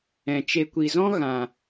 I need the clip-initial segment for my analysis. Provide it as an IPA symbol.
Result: ɛ̃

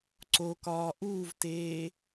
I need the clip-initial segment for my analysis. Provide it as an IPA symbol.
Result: ǀ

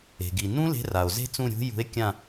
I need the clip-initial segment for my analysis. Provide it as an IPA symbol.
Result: e̤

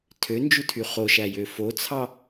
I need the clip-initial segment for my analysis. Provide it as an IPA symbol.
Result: tʰ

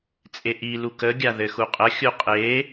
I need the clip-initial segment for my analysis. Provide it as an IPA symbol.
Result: t͡sʼ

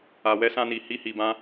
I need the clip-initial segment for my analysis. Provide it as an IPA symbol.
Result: a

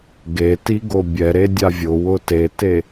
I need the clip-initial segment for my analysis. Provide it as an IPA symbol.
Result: ɡ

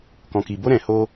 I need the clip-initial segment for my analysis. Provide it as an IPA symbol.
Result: k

